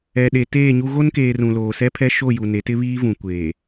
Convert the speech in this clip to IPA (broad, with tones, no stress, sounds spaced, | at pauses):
ɛ˨ ɗ e˨ t eː˦˨ ɲ u˦ ɣ o˦ n k eː˨ r ũ˨ l oː˨ s ɛ˦ pʰ ɛ˦ ʃ o˦˨ j u˨ n e˨˦ t ɪ˦ β iː˦ v ũ˨ kʷ eː˨